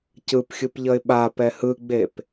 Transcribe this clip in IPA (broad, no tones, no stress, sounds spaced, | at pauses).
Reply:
c ɯ p xʲ ɯ p ʎ ʌ ɪ̯ ɓ a p ɛ h ɯ ɡ͡b e p